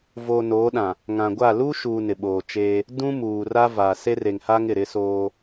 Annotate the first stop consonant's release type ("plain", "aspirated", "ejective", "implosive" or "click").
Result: implosive